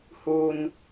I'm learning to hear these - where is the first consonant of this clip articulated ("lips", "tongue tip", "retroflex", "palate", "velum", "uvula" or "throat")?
throat